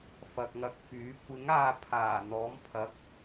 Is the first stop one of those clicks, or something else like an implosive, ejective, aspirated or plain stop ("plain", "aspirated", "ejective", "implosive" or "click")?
plain